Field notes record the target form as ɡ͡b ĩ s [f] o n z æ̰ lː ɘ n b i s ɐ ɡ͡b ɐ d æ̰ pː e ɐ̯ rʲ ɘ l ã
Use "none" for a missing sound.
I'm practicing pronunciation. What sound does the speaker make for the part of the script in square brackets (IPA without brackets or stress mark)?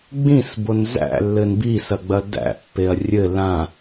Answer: b